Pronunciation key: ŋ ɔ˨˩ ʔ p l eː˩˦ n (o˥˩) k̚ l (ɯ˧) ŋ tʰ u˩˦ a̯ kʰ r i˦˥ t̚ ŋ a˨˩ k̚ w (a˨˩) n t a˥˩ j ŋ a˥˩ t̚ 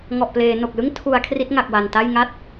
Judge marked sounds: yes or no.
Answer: no, no, yes

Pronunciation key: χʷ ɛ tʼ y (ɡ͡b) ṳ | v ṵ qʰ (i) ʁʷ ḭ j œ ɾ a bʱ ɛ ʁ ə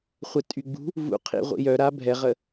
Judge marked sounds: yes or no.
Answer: yes, no

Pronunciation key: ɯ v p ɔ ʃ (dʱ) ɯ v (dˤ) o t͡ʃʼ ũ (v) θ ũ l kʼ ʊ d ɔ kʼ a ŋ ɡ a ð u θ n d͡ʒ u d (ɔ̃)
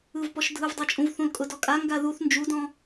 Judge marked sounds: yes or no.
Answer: yes, yes, yes, yes

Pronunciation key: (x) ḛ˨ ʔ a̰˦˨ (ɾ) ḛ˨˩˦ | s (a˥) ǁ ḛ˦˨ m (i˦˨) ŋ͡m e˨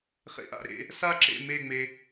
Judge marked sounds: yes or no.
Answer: no, yes, yes, no

